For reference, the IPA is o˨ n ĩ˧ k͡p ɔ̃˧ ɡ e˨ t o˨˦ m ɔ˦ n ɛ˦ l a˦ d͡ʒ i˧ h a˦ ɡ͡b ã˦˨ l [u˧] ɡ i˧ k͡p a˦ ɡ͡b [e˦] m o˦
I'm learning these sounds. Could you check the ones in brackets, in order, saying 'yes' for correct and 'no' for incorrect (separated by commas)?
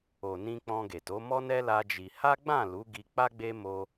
no, yes